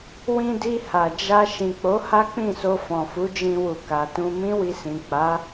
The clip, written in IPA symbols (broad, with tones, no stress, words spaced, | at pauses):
wĩ˧di˧ha˨ d͡ʒa˧ ʃĩ˨k͡po˨˦ ha˦k͡pĩ˦˨so˧ fɔ̃˨fu˨˦d͡ʒĩ˧wu˨ ka˨tũ˧mĩ˦wi˧ sĩ˨ k͡pa˨˦